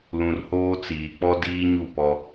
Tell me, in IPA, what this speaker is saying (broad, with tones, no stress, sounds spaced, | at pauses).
l ũ˨ r h oː˦ t͡s iː˨ k͡p ɔ˦ d iː˦ ɲ u˦˨ p ɔ˦